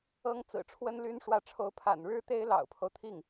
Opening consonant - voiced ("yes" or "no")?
yes